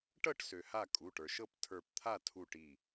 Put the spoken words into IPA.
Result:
ʈ ɤ˥˨ ʈ s ø˩ h a˥˨ kʼ u˩˧˩ ʈ ə˞˩ ʃ ɤ˥˨ p tʰ ə˞˧˩ p t̪ʰ a˥˨ tʰ u˧˩ ʈ i˧˩

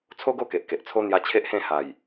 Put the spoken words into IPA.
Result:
t͡sʰ o˦ ɡ o˥˧ k e˨ ʔ k e˨ ʔ t͡sʰ o˦ n̪ j a˧ t͡ɕʰ e˦ ʔ h ẽ˥˧ h a˨˩ j

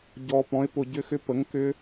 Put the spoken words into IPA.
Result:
ɟ ɔ˨ p ɔ̃˩˥ ɪ̯ p ʊ˨ ɟ ʏ˦˥ x ʏ˦˥ p ə˩˥ ŋ k ʏ˦˥

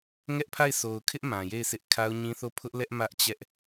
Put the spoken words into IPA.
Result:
ŋ ɛ˦ ʔ pʰ a˦˨ ɪ̯ sʰ o˨ ʊ̯ kʰ ɪ˦ ʔ m ã˨ j e˦˨ ɪ̯ s ɪ˦ ʔ kʰ a˦ ʊ̯ ɲ ĩ˦ θ o˦˨ pʰ ʊ˦ ʔ l ɛ˦ ʔ m ä˦ ʔ t͡ɕ ɛ˦ ʔ

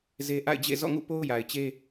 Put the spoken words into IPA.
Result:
z e˦ ʔ a̰˦˨ ɪ̯ d͡ʑ ḛ˦˨ z ɔ̰˦˨ ŋ ṵ˦˨ p o˦ ʊ̯ j a˨ ɪ̯ t͡ɕ e˦

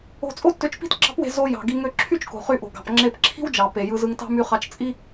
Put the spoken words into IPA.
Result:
o̤˧ t͡sʼ o˥ tː ø˧ t͡ʃ p i̤˥ t ɡ͡ǁ ɑ̤˥ p w e̤˧ z o˧ j ɑ̤˩ ɡ i˧ ŋ ø˧ ǁʰ y˥ t͡ʃ k o̤˩ χ y˧ ʔ o̤˩ ɡ ɑ̤˩ p ŋ͡ǁ e˧ p ǁʰ i̤˥ w d͡ʒ ɑ˩ p e˩ j ɯ˧ z ɯ˧ ŋ t ɑ̤˥ m y˧ χ ɑ˧ t͡ʃ t͡sʼ i˥

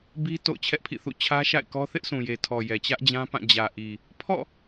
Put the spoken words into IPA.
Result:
b i˦ t o̰˦˨ ʊ̯ t͡ɕʰ ɛ˦ ʔ pʰ ḭ˦˨ θ ṵ˦˨ t͡ɕʰ ä˦ ʃ a̰˦˨ ɪ̯ k ɔ˦ θ ɪ˦ ʔ s ũ˨ j e˨ tʰ ɔ˨ j ɛ˨ t͡ɕ ä˦ ʔ d͡ʑ ã˦ p ã˦˨ d͡ʑ ä˨ ʔ i˨ | pʰ ɔ̰˦˨

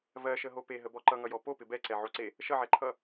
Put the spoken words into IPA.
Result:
v ɜ ʃ ə ɦ o p e ɦ ə b ɔ ǃ ʌ ŋ ʌ j ɔ p o p ɪ b ɛ ǀ ɛ ʕ o ǀ e | ʃ ʌ ʕ ɛ ǃʰ ʌ

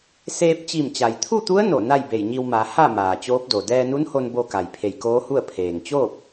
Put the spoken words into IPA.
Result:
s eː˧ p̚ t͡ɕ i˧˩ m t͡ɕ a˩ j t̪ʰ u˥˨ t̪ u˧˥ ə̯ n o˧˩ n a˥˨ j b e˧˩ j ɲ i˧ w m a˩˧ h a˥˨ m aː˩ t͡ɕ oː˧˥ p̚ d o˩ d ɛː˧ n u˧˥ n h o˧ n b o˧ k a˩ j pʰ e˧˩ j k oː˧˥ h u˥˨ ə̯ pʰ eː˩ ŋ t͡ɕ oː˥˨ p̚

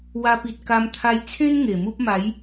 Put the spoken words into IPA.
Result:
w a˧ p i˨ t̚ k a˧ m t̪ʰ a˧ j t͡sʰ ẽ˦ n ŋ e˨˩ m u˦ p̚ m a˨˦ j

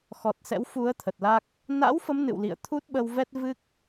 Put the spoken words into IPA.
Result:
x ɔ˨˩ t̚ s ɛ̰˧˥ w f u˨˦ ə̯ t̪ʰ ə˨˩ t̚ l a˦˥ k̚ | n a̰˧˥ w f ə˨˦ m n ɨ̰˧˨ w l ḭ˧˨ ə̯ t̪ʰ u˦˥ t̚ ɓ ə˧ w v ɛ˦˥ t̚ v ɨ˦˥ k̚

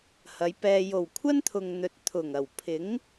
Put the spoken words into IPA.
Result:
h ɐ˨˧ j p ɛː˧ j o˨˩ w kʷʰ ɐ˥ n t̪ʰ ʊ˨ ŋ n̪ ɵ˨ t̚ t̪ʰ ʊ˨˩ ŋ ɐ˨˩ w pʰ ɪ˨˥ ŋ

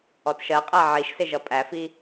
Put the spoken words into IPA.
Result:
ɔ t ʃ ɜ qʼ æ ʕ i ʃ s ɪ ʒ ʌ pʼ æ f i

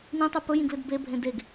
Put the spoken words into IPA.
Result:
n ĩ tˤ ʉ p ɵ j ĩ ɡ l ɨ d b e bʱ ẽ d e ɡ

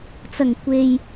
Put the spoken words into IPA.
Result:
t͡s ɐ˨˩ ŋ kʷ e˨ j

